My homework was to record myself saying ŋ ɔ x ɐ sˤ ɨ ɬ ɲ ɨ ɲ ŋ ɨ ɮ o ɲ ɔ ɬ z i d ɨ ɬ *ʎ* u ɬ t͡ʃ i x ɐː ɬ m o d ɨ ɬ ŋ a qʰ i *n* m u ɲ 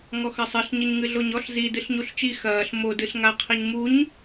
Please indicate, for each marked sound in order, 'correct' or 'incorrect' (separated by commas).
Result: incorrect, incorrect